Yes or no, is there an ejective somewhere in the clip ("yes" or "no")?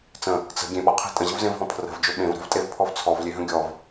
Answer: yes